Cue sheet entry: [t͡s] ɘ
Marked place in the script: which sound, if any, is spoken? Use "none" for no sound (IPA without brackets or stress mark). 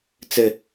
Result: t͡s